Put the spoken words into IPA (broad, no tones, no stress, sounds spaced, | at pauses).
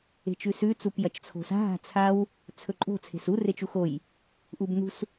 e̤ t͡ʃ ʉ s ʉ t͡s u p j ɐ t͡ʃ t͡sʰ o̤ s a̤ ɦ a̤ t͡sʰ a w | t͡sʰ ɵ ǃʼ o̤ t͡sʰ e̤ s u r e t͡ʃ u x o j | ʔ u b n ṳ s